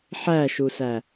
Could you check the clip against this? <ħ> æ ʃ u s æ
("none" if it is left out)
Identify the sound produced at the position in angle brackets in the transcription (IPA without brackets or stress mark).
ħ